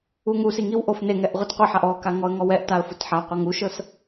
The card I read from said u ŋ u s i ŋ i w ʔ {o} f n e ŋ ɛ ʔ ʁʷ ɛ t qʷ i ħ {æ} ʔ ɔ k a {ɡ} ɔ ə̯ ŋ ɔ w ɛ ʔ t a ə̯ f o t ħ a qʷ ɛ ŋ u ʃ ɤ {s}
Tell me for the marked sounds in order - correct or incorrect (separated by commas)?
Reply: correct, incorrect, incorrect, correct